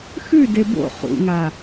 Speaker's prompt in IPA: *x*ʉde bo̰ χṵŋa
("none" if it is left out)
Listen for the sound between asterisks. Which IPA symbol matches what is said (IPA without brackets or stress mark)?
x